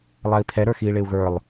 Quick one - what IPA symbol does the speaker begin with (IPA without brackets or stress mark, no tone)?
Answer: lˠ